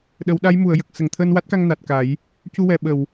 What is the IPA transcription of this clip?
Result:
ɗ ə˨˩˦ w ɗ a˧˥ j m u˨˩˨ ə̯ j ə˨˩ k̚ s ə˨˩˨ ŋ t̪ʰ əː˧ n w a˦˥ t̚ k a˧ ŋ n a˨˩ t̚ k a˨˩˦ j | c u˧ w ɛ˨˩˨ ɓ ə˨˩˨ w

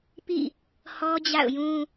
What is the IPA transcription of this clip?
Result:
p ḭ˦˨ | h ɔ˦ d͡ʑ a̰˦˨ ʊ̯ j ũ˦

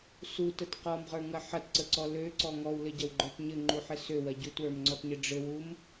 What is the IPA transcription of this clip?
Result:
s u t ə t q ɔ m ʁ ə˞ ŋ ɐ ħ ɐ t ǀ ə ǀ ɔ l ø ǀ ɔ ŋ ɔ w l ɘ ɟ ɐ w ɡ͡ǃ ə˞ t ɲ ɘ ŋ͡ǃ u ħ ɘ s ø w ɐ ɟ u t w ə˞ m ŋ͡ǀ ɔ t ɲ ɘ ɖ͡ʐ ɘ w u m

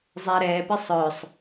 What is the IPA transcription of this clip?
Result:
zˤ ɛ ɾ ɛ p e sˤ œ sˤ

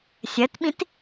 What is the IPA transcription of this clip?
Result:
sʲ ɐ t ɓ ĩ t

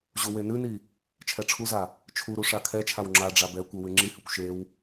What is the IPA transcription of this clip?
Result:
ʑ u w e n ʉ n i | t͡ʃʰ ɛ ʈ͡ʂʰ u z a | t͡ʃʰ u ɾ u ʂ a kʰ ɛ t͡ʃʰ a w ŋ͡ǁ a ɖ͡ʐ a b ɛ kʷ ɘ w ʉ ŋ͡ǁ i h ʉ kʷ ʃ e w

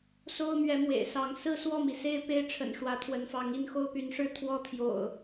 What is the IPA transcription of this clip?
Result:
s o˦ ʊ̯ m ɥ ɛ˨˦ m w ḛ˨˩ ɪ̯ s ɑ˨˦ ŋ s ɹ̩˥˨ s w ɔ˥˨ m i˩ s e˥˨ ɪ̯ p e˦ ɪ̯ ʈ͡ʂʰ ə̰˨˩ n ʂ w ä˨˦ t̪ʰ w ə˨˦ n f ɑ˨˦ ŋ i˥˨ n x o˦ ʊ̯ p y˨˦ n ʂ ɻ̩˦ t̪ʰ w ɔ˦ t̪ʰ j o̰˨˩ ʊ̯

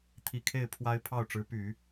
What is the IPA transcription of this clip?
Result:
t̪ʰ i˨˩ kʰ e˥˩ ɪ̯ pʰ w a˥ ɪ̯ pʰ ɑ˥˩ ʊ̯ ʈ͡ʂ ɻ̩˧˥ p y˨˩˦

